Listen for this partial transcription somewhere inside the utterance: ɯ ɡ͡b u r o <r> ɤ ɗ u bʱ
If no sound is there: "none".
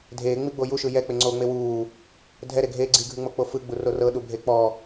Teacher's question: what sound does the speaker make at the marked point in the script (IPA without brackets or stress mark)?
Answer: r